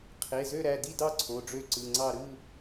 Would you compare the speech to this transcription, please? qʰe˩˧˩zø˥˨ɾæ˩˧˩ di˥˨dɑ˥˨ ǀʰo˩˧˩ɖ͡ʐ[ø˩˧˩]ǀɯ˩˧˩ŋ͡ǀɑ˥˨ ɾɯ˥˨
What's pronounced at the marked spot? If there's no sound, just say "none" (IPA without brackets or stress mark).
ø˥˨